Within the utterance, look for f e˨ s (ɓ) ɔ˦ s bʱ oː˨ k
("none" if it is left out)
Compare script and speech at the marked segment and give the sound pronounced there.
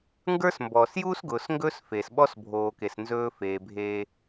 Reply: ɓ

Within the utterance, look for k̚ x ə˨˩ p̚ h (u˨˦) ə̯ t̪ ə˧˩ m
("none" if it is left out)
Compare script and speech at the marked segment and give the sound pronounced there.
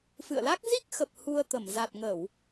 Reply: u˧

